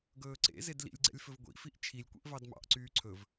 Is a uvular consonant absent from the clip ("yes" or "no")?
yes